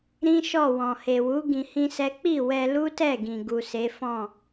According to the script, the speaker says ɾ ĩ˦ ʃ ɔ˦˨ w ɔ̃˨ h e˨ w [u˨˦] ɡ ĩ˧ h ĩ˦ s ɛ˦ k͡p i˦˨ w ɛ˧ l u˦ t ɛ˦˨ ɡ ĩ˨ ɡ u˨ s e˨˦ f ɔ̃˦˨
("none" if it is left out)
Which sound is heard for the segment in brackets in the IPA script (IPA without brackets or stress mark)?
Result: u˨˦